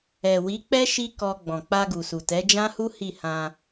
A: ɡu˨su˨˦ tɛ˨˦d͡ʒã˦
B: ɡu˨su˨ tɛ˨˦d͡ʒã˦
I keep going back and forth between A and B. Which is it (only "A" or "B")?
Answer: B